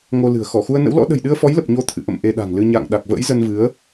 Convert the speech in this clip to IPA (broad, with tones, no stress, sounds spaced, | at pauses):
ŋ o˧ l ɨ̤˨˩ ə̯ x ɔ˧˩ x u˧ ə̯ n ə̰˧˥ w l ɔ̰˧˥ ɗ ə̤˨˩ j ɗ ɨ˧ ə̯ f ɔ˨˦ j l ə˨˩ p̚ ɲ o˧ t̪ʰ ɨ̰˧˨ ʔ ə̰˧˨ m ʔ e˧ ɗ a̤˨˩ ŋ l ɨ˧ ɲ a̰ː˧˨ ŋ ɗ a˨˩ k̚ v ə̰ː˧˥ j z ə˧ n v ɨ˨˦ ə̯